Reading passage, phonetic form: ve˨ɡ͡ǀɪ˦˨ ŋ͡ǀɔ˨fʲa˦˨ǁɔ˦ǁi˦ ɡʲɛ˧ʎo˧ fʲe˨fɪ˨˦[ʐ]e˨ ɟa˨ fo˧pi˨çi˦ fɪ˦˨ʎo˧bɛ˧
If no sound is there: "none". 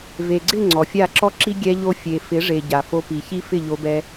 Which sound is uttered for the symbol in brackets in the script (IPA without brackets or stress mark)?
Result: ʐ